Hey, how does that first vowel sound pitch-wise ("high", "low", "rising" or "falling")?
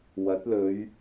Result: rising